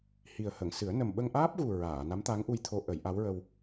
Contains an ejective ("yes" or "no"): no